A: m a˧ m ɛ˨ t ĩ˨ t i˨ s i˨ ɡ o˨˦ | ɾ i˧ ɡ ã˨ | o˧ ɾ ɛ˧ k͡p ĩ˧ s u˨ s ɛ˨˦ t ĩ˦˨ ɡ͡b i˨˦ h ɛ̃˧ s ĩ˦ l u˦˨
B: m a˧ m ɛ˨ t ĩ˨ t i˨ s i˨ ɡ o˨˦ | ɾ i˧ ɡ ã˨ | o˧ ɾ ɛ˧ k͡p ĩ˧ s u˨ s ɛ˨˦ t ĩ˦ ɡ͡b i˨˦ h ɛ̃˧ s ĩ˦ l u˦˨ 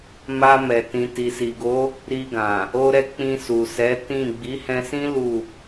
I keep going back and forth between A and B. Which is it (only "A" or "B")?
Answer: A